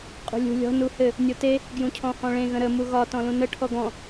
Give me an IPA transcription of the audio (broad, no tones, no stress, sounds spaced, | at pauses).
qʼ ṳ lʲ ṳ lʲ ɔ̤ n u h ɘ | nʲ o t e | ɡ j ũ cʰ ɔ̃ h ɔ̃ ɭ ẽ ɣ ə̃ ɾ ə m u ɣ ɒ t ɔ̃ l ũ n ə ʈʰ ɔ ɡ ɔ̃